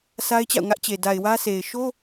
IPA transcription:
sʰ a˦ ɪ̯ t͡ɕ a̰˦˨ ʊ̯ ŋ ä˦ ʔ t͡ɕ e˨ d a˨ ɪ̯ w ä˦ s e˨ ɪ̯ ʃ o˦

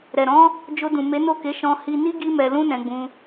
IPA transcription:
ɾ ɛ˨ ɾ ɔ̃˨˦ | d͡ʒ o˧ d ũ˨ m e˨˦ n o˦˨ k e˨˦ ʃ ɔ̃˧ h i˧ n i˦ ɡ i˦ m ɛ˧ l ũ˦ n ɛ̃˧ ɡ͡b ũ˧

